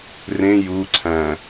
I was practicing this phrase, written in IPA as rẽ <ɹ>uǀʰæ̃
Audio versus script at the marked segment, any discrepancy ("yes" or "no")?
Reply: yes